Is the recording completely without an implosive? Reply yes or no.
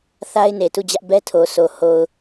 yes